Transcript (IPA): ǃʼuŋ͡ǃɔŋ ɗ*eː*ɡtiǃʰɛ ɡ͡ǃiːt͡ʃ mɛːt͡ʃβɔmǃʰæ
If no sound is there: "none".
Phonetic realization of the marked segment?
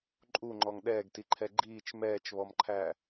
ɛː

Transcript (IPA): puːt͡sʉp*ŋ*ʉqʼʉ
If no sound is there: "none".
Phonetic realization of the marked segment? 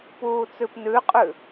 n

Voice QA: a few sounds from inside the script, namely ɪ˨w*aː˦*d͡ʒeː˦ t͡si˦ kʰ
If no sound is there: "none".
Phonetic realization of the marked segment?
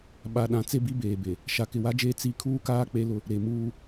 a˦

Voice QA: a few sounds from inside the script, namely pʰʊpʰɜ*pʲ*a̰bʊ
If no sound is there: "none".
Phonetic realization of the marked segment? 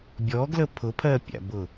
pʲ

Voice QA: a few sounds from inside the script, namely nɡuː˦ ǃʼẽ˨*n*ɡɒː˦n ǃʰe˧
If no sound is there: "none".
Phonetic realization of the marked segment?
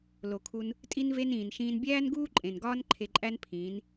n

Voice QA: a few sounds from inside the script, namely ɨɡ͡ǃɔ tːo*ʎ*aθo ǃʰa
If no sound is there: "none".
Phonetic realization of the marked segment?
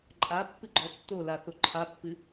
l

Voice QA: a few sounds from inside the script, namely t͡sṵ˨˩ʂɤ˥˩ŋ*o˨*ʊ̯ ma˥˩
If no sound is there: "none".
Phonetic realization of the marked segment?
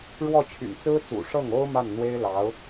o˥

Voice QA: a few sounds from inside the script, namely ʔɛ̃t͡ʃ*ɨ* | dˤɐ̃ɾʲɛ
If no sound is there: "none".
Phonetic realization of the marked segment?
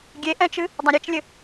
ɨ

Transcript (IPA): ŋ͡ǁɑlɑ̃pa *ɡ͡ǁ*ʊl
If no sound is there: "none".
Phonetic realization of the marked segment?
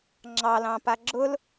ɡ͡ǁ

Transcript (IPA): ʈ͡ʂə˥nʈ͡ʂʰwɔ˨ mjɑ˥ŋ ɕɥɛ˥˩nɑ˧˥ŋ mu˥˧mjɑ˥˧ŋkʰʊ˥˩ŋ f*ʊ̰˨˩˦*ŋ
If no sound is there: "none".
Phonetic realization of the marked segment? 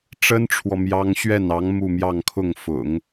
ʊ̰˨˩˦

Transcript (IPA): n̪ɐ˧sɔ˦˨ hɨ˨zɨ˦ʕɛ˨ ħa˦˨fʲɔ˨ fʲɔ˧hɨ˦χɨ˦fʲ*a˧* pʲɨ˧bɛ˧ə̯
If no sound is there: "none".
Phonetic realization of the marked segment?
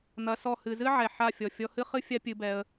a˦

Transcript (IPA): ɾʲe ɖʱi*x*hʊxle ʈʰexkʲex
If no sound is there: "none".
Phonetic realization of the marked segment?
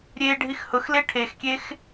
x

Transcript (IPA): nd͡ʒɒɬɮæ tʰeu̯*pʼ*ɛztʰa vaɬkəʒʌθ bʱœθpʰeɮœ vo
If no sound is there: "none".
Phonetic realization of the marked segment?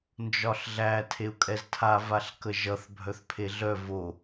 kʼ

